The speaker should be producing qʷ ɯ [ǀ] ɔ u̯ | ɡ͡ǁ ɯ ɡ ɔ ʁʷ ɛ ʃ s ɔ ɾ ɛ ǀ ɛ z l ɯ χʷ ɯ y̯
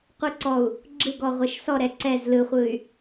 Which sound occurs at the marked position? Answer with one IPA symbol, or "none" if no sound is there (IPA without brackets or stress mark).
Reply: ǀ